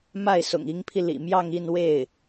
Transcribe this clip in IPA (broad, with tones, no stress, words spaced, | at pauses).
ma˥˩ɪ̯sʊ̰˨˩ŋi˧˥ŋpʰi˧ lḭ˨˩mjɑ˥˧ŋ i˥˧nwe˥˩ɪ̯